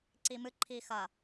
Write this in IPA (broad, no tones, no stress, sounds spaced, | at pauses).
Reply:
ǀ i m ɨ ǃʰ i x ɐ